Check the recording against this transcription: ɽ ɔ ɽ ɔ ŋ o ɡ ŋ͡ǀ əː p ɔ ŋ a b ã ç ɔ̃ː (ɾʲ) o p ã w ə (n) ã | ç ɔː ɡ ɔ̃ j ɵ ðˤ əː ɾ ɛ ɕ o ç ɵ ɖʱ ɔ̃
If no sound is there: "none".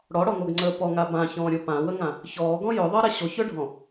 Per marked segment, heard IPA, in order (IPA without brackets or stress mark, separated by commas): ɾʲ, ŋ